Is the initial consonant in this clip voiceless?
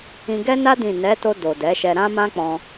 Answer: no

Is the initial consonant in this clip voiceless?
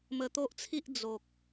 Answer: no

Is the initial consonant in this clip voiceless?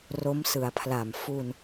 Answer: no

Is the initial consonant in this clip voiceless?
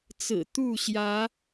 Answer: yes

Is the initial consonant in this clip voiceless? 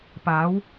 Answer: yes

